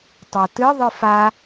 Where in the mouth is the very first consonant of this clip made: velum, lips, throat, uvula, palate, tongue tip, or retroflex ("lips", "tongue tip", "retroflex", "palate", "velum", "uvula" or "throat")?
tongue tip